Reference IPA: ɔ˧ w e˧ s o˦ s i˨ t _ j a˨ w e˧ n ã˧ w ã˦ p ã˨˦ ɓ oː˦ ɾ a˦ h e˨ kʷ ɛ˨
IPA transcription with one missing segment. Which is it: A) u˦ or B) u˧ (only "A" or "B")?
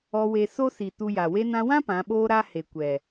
B